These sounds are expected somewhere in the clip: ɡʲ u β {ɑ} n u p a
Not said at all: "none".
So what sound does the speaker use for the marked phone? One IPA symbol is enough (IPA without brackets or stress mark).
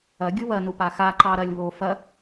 ɐ